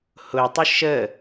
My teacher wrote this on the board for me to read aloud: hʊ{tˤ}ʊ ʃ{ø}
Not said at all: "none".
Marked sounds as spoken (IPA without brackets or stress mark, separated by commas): tˤ, ə